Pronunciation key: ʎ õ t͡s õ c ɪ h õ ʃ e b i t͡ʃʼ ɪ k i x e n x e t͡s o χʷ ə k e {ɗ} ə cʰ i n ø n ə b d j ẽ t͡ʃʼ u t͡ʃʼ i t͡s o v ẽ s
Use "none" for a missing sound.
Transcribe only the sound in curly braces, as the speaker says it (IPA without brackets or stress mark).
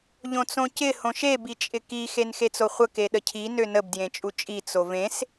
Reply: ɗ